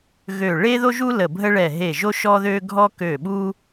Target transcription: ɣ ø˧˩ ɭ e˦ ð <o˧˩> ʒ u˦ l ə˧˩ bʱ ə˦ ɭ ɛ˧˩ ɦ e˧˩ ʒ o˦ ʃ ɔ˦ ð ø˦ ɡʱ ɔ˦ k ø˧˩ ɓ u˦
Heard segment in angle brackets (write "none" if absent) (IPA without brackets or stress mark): o˦